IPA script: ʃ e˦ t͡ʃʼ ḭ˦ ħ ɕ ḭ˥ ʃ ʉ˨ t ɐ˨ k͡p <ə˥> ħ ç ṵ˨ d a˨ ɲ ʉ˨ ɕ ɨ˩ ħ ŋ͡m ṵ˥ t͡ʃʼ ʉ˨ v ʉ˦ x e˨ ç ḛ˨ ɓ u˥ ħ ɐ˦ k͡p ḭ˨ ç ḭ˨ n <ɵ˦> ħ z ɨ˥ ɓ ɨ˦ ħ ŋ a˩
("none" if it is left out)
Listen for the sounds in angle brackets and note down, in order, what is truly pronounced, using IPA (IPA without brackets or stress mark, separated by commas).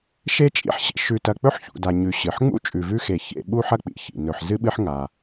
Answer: ɵ˥, ɵ˨